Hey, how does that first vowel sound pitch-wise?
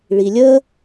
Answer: low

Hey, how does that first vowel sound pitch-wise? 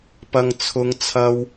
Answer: high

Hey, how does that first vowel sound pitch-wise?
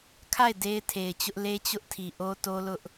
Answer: falling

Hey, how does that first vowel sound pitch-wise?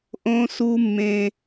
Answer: high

